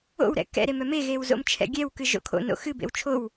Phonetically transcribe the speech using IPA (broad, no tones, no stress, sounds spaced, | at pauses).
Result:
o̰ w ɾ ɛ̰ k ɛ̰ ɾ e m œ m e ɣ e w z o̰ m t͡ʃʰ ɛ̰ ɡʲ ɛ w k ɨ ʒ o̰ kʰ o̰ n o̰ x ɨ b ḛ w t͡ʃʰ o w